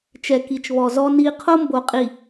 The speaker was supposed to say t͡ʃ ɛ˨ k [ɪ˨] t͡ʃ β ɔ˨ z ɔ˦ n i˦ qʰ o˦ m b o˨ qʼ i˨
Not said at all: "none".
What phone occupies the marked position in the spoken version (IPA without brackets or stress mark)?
i˨